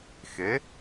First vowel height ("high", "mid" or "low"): mid